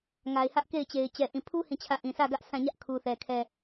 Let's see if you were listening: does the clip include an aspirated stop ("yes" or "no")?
yes